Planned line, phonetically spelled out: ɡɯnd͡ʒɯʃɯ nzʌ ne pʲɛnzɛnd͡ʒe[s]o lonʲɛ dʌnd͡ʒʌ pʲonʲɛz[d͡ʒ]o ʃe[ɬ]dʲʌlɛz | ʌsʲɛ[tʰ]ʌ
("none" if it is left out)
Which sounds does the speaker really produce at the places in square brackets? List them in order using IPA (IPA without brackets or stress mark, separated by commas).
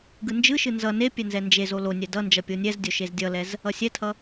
z, dʲ, z, tʰ